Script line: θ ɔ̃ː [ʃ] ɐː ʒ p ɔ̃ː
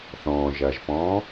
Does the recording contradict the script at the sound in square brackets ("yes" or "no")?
yes